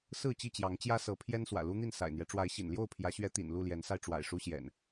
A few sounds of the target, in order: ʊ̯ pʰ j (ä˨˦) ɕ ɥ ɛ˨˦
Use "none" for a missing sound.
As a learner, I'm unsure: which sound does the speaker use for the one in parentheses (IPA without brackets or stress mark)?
ä˨˦